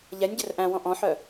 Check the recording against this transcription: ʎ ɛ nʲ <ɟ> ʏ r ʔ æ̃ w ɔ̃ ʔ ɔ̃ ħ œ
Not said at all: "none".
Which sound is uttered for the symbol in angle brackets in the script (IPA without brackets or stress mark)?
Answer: ɟ